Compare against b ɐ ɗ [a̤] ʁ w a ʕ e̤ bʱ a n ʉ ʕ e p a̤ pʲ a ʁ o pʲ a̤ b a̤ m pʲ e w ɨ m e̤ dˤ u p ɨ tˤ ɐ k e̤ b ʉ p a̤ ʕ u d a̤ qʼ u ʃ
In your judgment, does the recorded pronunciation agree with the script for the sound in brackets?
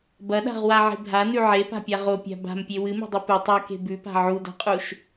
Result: yes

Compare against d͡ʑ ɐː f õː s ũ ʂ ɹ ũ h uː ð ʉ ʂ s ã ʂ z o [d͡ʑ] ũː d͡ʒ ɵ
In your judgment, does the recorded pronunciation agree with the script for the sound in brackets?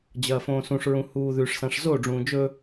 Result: no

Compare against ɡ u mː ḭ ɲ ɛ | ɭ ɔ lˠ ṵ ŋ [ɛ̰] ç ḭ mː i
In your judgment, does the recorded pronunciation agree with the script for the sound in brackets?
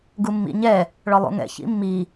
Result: yes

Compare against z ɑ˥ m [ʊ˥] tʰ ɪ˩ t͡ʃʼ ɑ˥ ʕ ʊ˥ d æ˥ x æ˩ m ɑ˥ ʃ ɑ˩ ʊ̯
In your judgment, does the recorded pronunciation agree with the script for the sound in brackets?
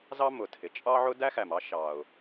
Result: no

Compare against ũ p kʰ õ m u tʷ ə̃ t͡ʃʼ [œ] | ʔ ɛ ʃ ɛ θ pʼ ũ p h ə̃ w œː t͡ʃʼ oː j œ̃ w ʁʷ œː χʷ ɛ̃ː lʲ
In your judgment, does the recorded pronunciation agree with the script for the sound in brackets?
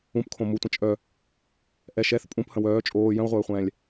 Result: yes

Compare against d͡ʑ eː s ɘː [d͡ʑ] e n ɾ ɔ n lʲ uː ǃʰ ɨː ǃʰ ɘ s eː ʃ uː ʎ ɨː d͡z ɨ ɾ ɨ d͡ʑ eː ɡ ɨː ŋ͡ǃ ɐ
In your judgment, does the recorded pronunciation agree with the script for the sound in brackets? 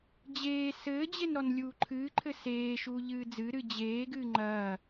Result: yes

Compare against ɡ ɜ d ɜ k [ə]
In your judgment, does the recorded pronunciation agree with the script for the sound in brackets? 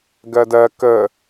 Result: yes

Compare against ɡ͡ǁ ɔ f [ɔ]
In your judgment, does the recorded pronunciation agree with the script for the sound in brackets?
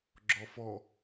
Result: yes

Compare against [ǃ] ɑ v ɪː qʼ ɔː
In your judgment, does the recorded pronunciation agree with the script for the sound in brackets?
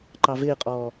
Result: yes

